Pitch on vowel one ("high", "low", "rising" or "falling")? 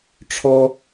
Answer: high